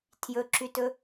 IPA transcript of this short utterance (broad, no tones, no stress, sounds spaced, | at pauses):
tʰ j ɵ ǁ y t ɵ